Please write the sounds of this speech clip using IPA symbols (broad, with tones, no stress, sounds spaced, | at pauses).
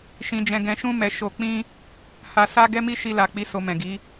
ʃ ĩ˧ d͡ʒ ɛ̃˧ ɡ ɛ̃˧ ʃ ũ˦ m ɛ˧ ʃ o˧ k͡p ĩ˦ | h a˧ s a˦ ɡ ɛ˦ m i˦ ʃ i˧ l a˨ k͡p i˨˦ s o˧ m ɛ̃˨ ɡ i˨˦